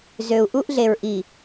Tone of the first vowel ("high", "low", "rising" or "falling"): low